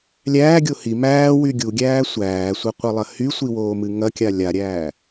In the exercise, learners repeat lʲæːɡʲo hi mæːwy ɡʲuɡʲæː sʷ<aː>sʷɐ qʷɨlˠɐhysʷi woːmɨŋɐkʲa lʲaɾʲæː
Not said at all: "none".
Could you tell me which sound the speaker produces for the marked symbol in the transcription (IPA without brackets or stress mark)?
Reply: æː